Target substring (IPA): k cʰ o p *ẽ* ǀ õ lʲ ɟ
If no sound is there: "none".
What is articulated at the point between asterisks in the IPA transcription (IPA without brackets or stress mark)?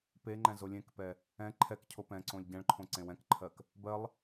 ɛ̃